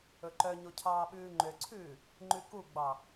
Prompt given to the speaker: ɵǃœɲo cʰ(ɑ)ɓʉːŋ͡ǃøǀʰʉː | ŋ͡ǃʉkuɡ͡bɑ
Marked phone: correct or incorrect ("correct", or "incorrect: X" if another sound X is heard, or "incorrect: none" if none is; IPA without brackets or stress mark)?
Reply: incorrect: ɑː